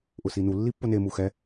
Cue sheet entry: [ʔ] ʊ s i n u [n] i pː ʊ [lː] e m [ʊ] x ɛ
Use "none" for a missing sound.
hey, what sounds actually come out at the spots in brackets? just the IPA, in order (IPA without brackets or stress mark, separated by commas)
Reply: ʔ, lː, n, u